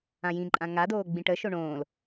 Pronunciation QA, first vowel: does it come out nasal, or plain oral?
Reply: nasal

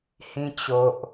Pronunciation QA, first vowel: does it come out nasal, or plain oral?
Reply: nasal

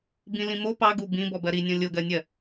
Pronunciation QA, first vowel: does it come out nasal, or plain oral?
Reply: nasal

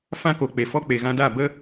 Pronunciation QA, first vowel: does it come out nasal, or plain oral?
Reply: nasal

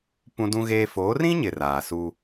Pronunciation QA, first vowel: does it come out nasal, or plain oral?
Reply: nasal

